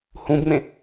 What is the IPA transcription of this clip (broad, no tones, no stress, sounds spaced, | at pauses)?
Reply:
h ũ b ŋ͡m ẽ